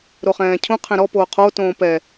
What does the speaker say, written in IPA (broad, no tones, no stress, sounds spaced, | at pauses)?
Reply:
ɾ o χ ɛ̃ː cʰ ũ qʰ ɛ̃ ɾ ɔ p oː qʰ o t õː p ɛ